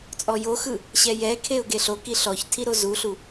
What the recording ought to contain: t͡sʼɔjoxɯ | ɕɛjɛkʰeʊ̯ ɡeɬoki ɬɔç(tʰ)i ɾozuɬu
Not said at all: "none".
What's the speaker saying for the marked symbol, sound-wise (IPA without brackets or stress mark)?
tʰ